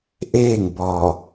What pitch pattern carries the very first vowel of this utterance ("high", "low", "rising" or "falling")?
falling